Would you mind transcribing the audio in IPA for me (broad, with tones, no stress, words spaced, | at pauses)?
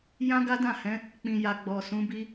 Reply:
jã˦ɡa˦dã˦˨hɛ̃˨˦ | k͡pĩ˨ja˨ ɡ͡bɔ˨sũ˨˦bi˦